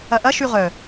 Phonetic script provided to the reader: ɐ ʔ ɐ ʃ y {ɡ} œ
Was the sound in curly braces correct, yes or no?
no